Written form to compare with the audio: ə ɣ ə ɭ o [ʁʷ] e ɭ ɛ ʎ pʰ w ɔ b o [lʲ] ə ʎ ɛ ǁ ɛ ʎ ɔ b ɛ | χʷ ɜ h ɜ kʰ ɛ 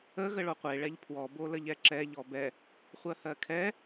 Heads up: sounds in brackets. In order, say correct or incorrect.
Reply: incorrect, incorrect

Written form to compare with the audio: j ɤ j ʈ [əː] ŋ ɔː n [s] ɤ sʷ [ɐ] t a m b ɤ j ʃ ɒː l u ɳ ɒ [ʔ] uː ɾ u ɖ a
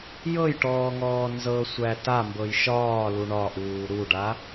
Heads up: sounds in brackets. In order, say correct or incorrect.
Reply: incorrect, incorrect, incorrect, correct

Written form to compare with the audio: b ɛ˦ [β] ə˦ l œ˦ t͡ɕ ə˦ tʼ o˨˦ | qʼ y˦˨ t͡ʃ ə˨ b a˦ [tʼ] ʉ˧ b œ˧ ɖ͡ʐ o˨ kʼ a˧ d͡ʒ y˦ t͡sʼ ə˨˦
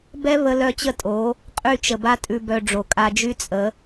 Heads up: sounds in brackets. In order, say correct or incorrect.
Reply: correct, correct

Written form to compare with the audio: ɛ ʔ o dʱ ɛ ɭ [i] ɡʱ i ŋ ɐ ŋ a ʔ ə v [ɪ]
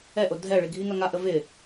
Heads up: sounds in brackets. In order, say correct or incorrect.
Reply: correct, correct

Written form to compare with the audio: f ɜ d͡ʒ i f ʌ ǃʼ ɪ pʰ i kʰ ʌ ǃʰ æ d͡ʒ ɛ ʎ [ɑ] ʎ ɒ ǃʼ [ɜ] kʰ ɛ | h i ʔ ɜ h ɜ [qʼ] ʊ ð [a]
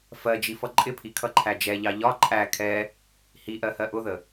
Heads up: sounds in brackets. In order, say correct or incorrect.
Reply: correct, incorrect, incorrect, incorrect

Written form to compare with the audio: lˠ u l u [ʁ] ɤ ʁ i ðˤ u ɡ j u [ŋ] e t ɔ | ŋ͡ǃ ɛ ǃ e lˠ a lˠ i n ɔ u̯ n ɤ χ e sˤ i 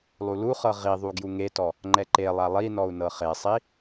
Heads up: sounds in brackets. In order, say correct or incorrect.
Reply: incorrect, correct

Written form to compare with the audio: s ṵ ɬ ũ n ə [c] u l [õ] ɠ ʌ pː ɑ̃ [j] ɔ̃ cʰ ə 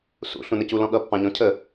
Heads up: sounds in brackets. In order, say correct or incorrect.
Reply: correct, incorrect, incorrect

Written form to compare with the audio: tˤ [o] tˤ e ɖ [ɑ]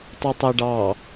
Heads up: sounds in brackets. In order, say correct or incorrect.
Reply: correct, correct

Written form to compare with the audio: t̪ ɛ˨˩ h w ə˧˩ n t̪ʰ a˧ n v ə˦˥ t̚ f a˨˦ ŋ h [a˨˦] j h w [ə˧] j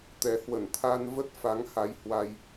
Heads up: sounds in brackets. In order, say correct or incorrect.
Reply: correct, incorrect

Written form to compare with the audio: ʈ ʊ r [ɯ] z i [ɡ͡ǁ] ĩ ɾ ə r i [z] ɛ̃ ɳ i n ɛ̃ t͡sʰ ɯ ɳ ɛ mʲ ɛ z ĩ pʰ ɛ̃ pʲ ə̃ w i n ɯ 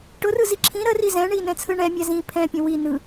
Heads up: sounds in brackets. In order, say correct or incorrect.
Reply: correct, incorrect, correct

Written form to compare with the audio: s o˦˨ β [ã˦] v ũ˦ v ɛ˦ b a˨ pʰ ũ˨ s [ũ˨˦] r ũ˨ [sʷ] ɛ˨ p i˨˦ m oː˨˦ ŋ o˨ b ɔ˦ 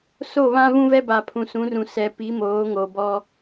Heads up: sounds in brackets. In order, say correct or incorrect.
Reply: correct, correct, incorrect

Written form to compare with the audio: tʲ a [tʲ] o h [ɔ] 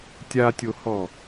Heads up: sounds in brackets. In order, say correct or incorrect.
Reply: correct, correct

